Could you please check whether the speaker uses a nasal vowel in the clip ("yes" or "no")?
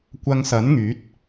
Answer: no